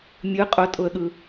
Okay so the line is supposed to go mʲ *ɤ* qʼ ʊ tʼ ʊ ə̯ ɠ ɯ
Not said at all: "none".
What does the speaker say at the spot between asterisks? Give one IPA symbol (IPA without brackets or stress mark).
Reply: ɯ